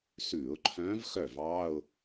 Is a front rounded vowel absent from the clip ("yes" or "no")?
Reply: no